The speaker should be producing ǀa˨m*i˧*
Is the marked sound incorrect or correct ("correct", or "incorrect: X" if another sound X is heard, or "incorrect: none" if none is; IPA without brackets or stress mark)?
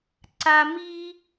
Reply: correct